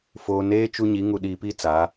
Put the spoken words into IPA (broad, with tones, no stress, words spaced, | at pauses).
foː˦ neː˦ t͡ʃu˦ɲi˨˦ ŋu˨ɗiː˨pi˦˨ t͡sa˨˦